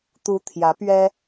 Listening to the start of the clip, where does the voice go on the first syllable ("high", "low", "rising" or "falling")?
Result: rising